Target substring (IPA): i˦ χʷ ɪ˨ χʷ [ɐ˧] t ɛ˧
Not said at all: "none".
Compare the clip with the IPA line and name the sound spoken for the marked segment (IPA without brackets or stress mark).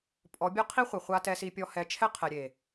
a˧